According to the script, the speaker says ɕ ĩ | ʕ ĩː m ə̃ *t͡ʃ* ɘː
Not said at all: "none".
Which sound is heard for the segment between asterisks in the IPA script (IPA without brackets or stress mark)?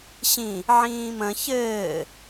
ç